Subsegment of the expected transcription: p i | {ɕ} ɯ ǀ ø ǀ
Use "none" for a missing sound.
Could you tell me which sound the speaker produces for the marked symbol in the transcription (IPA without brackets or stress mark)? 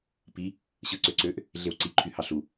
ɕ